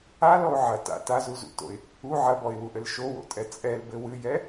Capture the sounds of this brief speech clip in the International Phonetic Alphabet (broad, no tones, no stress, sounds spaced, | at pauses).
a l ɔ ʊ̯ ʕ ɐ t a̰ t a z u z ṵ t o̰ ɪ̯ | u ʕ ɐ b ɔ ɪ̯ w u ʔ ɘ l ʃ o w o̰ tʼ ɛ t͡sʼ ɛ l b ɘ w ɨ j ɛ